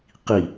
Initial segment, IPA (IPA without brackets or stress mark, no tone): q